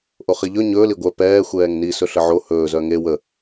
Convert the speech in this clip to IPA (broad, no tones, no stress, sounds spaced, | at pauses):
ʔ o χ i ʎ ɵ ɲ ɵː l i ɡʷ œ p ɛː xʷ ɛː ŋ n i s ɵ ɬ ə ʕ o h ɵː z œ ŋ e w ə